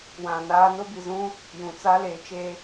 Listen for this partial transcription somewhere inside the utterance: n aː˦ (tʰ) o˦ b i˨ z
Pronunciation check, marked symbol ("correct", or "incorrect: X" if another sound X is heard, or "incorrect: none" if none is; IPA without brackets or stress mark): incorrect: n